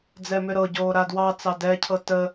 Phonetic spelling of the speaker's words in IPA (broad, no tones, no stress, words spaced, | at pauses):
d͡zɛmʏɾɤɟoː ɾadwɑt͡sɑ dɛcʰɤ tə